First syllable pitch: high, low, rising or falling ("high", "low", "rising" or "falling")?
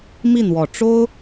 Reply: falling